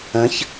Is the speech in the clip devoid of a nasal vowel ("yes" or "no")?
no